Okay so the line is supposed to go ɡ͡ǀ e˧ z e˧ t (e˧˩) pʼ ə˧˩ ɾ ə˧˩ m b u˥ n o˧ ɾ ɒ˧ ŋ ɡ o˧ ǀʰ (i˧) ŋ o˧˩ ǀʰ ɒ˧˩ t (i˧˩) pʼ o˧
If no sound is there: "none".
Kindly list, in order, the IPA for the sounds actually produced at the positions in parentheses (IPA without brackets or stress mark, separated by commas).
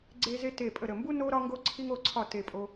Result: e˧˩, i˧, e˧˩